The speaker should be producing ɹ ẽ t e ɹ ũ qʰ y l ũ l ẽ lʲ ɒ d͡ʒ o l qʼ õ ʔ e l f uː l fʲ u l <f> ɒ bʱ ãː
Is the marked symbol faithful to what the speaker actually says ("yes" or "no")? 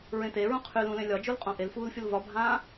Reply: no